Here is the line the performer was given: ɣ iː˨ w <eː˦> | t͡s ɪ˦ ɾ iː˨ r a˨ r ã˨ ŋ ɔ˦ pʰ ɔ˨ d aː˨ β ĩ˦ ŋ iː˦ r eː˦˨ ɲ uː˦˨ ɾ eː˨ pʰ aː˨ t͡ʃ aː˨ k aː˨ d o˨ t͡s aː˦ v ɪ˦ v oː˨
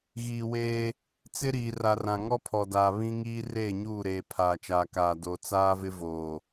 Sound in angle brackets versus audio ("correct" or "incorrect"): correct